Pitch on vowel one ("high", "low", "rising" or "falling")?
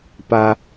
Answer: low